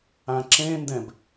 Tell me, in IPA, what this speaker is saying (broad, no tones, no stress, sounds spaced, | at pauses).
ã ǁ ẽ n d ɛ̃ b